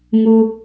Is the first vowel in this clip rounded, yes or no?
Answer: yes